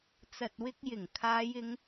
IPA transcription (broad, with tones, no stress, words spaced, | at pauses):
t͡sɐ˨t̚wɪ˧k̚jɪ˨˩ŋ kʰaː˨˧jɪ˨˧ŋ